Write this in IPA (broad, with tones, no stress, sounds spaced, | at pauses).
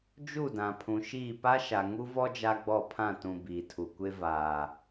d͡ʒ u˦˨ d ã˨ pʰ ũ˨ ʃ iː˦˨ p a˦ ʃ a˨ ŋ u˦ v ɔ˦ d͡ʒ a˦ ɡ͡b ɔ˦˨ pʰ ã˦˨ t ũ˨ b iː˨ tʰ u˨ kʷ e˦ v aː˨